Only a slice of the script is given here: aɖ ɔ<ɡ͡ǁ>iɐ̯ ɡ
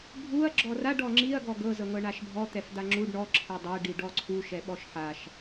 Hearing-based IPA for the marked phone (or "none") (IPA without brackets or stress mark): ŋ͡ǁ